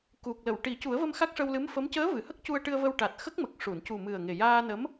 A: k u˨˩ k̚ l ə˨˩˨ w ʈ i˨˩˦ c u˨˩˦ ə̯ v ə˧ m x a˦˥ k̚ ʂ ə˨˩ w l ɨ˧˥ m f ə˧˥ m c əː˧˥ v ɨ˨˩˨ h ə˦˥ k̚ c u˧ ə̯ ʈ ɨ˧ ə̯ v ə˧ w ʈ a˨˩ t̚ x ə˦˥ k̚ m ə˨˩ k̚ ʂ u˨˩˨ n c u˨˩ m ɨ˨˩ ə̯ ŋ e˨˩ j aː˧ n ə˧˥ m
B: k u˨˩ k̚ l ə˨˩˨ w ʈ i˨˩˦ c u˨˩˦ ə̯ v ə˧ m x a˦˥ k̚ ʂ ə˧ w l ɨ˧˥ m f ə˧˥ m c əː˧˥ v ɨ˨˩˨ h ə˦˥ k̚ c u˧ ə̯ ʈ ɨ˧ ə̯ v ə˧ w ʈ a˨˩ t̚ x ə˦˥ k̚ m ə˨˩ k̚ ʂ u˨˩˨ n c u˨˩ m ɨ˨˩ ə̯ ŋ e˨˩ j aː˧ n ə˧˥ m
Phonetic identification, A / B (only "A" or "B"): B